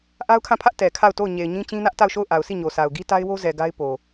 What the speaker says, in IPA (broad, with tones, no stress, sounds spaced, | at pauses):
ʔ a˦ ʊ̯ kʰ ã˦˨ pʰ ä˦ ʔ t ɛ˨ kʰ a˦˨ ʊ̯ t o˦˨ ʊ̯ ɲ e˨ ɪ̯ ɲ ĩ˦ t͡ɕ ĩ˦ n ä˦ ʔ t a˦˨ ʊ̯ ʃ o˦˨ ʊ̯ ʔ a˨ ʊ̯ s i˦˨ ɲ o˨ s a˨ ʊ̯ ɡ i˦ t a˦ ɪ̯ w o˦ z ɛ˨ ɡ a˦ ɪ̯ p o˨